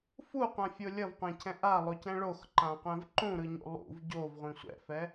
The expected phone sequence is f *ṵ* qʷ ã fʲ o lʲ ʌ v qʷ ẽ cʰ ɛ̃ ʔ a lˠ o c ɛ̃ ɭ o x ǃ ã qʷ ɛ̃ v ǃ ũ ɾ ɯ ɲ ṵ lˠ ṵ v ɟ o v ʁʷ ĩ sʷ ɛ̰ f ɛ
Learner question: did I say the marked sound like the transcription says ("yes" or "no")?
no